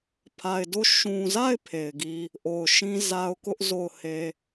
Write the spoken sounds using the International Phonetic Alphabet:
pʰa˨ɪ̯do˦˨ ʃũ˨za˦˨ɪ̯ pʰe˨ɪ̯ɡi˦ | ʔo˨ʊ̯ʃĩ˦za˦ʊ̯ kʊ˦ʔ zo˦˨ʊ̯he˦

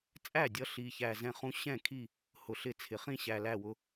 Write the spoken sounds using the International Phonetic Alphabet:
t͡sʼæ˥˩dʲʌ˧ ɬi˨˩çæ˨˩zɛ̃˧χũ˧ ɕɛ̃˥˩kʰi˥˩ | hʊ˨˩ɬɪ˥˩t͡sʰɪ˨˩ χĩ˥˩ɕæ˨˩ læ˥˩wʊ˧

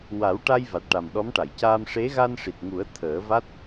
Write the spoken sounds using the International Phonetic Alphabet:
wa˨˩˦wʈa˧jva˨˩t̚ ʈa˨˩mɗɔ˧˥mʈa˨˩˨j caː˧mʂe˧˥ ɣa˧nʂi˨˩t̚ŋu˨˩˦ə̯ t̪ʰəː˨˩˦va˦˥t̚

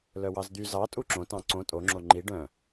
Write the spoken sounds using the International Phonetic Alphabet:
lœwɑzd̪y zɑ tʼuǁõ tɑ̃ǀõ tʼo ŋ͡ǁoŋ͡ǃi ɖœ̃

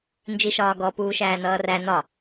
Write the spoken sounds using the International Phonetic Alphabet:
nd͡ʒiʃɒːɡɔ puːʃæːnʌːræ nɒ

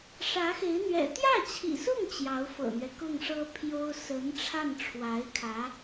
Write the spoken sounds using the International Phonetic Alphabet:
ʂä˧˥xe˧˥ɪ̯n̪ɥɛ̰˨˩ t̪jä˥˩t͡ɕʰḭ˨˩sʊ˥˩ŋ t͡ɕjɑ˧˥ʊ̯fɤ̰˨˩n̪ɥɛ˦ kʊ˥˩ŋʂɤ˥pʰjo˥ʊ̯ sə˧˥n ʈ͡ʂʰa˥˩nʈ͡ʂʰwa˧˥ɪ̯kʰä˧˥

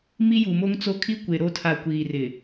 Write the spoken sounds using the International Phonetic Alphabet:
mi˦ju˨mo˦ŋt͡so˦ kʰi˦kʷe˨ɾo˦˨tʰa˨ kʷiː˨rɪ˨

